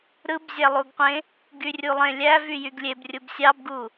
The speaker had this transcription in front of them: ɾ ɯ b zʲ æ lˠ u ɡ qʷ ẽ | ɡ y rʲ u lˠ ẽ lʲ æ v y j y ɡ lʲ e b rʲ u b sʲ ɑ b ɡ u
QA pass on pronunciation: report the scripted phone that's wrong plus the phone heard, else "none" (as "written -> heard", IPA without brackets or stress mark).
none